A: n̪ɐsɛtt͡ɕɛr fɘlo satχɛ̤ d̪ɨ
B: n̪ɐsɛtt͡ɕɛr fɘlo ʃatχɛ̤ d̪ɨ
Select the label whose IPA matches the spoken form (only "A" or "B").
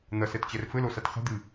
A